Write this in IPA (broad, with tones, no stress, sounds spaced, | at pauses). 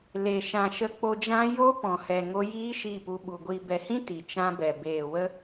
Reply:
l e˨ ʃ ã˨ ʃ ə˧ k͡p o˧ d͡ʒ ã˦ j o˦ p ɔ̃˨ h ɛ˨ ŋ o˧ j iː˦ ʃ i˦˨ p u˧ ɓ u˨ ɡʷ i˨ b ɛ˨ h ĩ˦ t i˨ t͡ʃ ã˦ b ɛ˨ b eː˨ w ə˦